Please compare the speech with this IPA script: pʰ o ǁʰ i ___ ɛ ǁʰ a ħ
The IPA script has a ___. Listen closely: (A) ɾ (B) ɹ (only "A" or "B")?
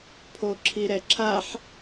A